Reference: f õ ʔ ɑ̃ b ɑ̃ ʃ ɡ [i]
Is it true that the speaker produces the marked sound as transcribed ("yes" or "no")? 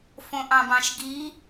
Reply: yes